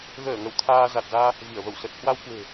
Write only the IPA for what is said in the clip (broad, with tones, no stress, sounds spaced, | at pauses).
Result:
ɣ əː˧˩ ŋ ə˧˩ w t̪ʰ aː˧ z a˨˩ t̚ z aː˧ | v i˧˩ ə̯ v ə˧˩ w s ə˨˩ t̚ h w a˧ w k w e̤˨˩